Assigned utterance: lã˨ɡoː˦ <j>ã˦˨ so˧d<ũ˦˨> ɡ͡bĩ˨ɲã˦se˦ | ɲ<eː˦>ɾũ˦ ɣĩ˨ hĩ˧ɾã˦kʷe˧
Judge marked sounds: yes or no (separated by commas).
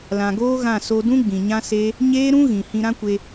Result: no, no, yes